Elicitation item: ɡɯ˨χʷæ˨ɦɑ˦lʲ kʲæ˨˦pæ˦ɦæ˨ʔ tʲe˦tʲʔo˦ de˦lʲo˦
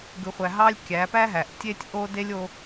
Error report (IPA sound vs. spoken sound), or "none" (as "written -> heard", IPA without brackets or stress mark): none